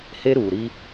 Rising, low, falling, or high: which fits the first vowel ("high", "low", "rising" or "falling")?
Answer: high